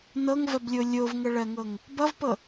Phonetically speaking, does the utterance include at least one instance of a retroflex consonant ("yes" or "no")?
yes